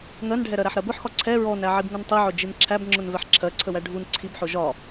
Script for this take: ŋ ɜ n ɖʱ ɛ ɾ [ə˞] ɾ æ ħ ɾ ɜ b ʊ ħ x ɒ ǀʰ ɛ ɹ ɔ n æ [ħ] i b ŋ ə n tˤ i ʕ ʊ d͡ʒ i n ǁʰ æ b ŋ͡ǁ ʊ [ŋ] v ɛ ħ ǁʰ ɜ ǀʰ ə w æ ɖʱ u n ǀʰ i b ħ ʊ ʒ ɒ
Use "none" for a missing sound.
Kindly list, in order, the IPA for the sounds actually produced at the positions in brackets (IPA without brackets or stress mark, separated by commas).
ɜ, ʕ, n